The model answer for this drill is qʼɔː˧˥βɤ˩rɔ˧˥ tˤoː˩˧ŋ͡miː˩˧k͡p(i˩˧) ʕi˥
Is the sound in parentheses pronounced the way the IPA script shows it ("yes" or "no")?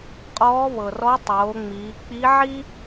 no